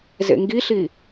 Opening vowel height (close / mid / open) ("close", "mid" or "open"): mid